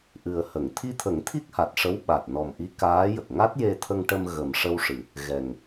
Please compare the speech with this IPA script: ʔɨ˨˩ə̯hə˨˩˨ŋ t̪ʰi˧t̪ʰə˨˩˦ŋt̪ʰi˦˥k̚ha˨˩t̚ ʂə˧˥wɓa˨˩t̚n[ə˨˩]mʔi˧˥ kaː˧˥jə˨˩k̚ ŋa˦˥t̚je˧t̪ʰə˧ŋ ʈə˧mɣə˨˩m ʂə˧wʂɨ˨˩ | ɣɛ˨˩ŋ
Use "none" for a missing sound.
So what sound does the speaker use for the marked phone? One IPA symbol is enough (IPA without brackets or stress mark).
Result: ɔ˨˩